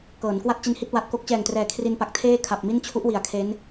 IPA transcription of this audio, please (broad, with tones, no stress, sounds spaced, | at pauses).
k ɤː˩˦ n k w a˥˩ t̚ t͡ɕ i˧ n h i˥˩ t̚ w a˨˩ t̚ k o˥˩ k̚ t͡ɕ ɛː˨˩ ŋ t r ɛː˨˩ kʰ r i˧ n p a˨˩ k̚ tʰ eː˥˩ kʰ a˨˩ p̚ m i˥˩ n t͡ɕʰ u˦˥ ʔ w i˩˦ a̯ kʰ e˦˥ n